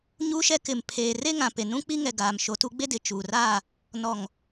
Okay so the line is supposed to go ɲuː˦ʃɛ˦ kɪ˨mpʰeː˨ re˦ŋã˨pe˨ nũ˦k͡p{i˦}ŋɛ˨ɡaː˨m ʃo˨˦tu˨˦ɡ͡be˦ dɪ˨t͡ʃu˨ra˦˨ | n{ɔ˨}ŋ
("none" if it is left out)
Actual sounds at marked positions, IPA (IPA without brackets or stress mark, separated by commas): i˦, ɔ˨